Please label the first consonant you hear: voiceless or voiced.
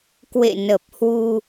voiceless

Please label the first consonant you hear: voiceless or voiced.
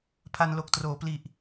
voiceless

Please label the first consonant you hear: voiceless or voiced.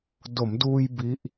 voiced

